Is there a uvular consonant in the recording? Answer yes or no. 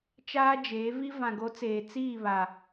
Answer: no